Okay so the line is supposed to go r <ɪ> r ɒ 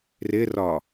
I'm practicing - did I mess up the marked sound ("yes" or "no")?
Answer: no